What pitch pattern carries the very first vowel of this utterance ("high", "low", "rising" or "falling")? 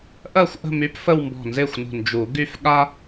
falling